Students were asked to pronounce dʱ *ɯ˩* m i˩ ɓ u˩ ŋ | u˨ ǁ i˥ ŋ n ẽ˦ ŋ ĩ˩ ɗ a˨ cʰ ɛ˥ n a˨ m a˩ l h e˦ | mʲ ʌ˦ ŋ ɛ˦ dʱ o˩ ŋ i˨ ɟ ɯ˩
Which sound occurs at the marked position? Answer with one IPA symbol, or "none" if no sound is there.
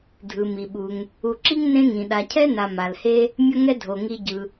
ɯ˩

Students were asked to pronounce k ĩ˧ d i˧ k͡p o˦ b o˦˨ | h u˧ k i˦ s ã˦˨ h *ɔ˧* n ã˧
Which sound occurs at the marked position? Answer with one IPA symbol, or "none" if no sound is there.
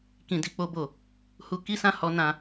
ɔ˨˦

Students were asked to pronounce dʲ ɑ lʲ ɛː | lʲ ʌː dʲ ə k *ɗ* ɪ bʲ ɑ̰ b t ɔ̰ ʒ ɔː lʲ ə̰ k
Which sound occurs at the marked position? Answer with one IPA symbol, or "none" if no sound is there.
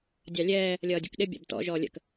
ɗ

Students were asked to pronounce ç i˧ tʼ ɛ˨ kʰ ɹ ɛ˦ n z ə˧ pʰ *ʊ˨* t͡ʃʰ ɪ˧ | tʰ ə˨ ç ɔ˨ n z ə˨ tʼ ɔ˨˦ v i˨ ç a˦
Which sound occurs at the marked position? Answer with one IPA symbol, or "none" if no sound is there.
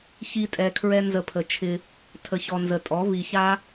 ə˨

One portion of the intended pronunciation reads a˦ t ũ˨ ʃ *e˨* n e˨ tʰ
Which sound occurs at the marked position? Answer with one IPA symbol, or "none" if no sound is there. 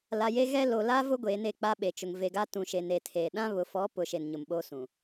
e˨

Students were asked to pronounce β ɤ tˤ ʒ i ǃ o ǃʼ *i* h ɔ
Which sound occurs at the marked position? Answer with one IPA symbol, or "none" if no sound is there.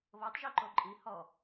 i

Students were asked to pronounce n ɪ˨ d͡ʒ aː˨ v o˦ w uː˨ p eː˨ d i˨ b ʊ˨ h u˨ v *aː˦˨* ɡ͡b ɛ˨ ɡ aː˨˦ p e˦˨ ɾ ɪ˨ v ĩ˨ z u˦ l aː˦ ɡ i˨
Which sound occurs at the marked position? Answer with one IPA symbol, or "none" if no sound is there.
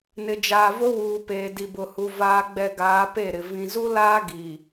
aː˨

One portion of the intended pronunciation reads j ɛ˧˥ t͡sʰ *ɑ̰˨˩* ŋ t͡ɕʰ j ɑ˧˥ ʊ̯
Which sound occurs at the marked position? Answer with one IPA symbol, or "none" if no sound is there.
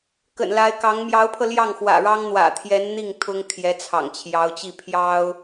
ɑ̰˨˩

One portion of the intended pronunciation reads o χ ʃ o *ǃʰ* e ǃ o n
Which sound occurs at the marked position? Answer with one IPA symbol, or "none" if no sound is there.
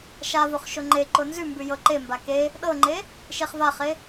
ŋ͡ǃ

